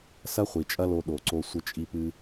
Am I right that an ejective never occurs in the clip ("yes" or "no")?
no